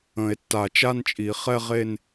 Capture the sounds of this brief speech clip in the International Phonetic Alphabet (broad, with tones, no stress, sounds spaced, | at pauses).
ə̃˨˩˦ e̯ tː a˨˩˦ t͡ʃ a˥˧ n t͡ʃʼ i˨˩˦ χ ɛ˥˧ ʁ e˥˧ n